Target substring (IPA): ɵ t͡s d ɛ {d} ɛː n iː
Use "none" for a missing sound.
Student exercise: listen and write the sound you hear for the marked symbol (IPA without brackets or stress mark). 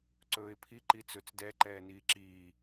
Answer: ǃ